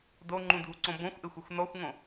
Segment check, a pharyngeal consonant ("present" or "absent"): absent